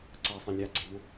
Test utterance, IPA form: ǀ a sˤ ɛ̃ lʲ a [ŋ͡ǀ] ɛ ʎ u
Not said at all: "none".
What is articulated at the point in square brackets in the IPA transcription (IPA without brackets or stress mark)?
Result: ɡ͡ǀ